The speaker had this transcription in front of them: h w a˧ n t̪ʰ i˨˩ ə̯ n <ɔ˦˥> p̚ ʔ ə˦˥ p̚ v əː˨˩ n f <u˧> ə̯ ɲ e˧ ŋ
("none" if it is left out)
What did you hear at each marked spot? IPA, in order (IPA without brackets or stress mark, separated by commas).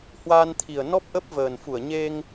ɔ˦˥, u˧˩